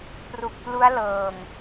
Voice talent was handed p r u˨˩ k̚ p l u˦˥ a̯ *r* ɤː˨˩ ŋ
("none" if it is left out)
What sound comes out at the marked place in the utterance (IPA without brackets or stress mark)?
l